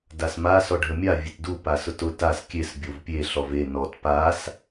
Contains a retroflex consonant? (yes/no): yes